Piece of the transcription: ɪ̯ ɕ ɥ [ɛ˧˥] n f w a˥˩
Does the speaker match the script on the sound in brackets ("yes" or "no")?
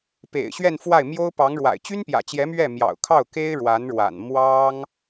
no